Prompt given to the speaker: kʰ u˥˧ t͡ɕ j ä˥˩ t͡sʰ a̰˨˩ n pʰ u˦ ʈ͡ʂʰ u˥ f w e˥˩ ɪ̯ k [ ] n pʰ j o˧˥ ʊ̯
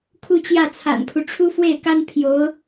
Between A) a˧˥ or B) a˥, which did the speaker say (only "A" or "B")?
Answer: B